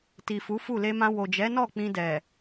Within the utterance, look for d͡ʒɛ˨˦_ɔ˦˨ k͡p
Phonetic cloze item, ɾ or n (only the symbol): n